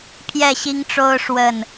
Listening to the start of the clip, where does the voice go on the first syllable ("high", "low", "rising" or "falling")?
falling